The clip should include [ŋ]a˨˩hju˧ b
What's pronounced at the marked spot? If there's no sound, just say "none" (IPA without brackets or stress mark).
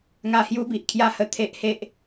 ŋ